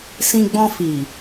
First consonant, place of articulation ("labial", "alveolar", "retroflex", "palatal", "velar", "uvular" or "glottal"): alveolar